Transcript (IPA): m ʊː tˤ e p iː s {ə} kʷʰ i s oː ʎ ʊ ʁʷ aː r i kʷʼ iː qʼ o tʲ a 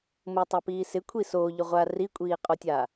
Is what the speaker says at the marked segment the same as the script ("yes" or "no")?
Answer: no